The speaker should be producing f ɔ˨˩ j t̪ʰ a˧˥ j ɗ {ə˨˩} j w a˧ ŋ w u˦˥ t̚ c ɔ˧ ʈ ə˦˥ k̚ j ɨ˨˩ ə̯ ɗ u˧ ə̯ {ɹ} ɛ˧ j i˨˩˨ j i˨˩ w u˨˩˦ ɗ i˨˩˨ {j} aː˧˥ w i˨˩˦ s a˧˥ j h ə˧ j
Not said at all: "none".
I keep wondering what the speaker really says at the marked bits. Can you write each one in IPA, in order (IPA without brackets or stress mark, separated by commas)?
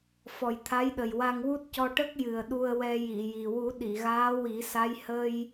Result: ə˨˩, w, ɣ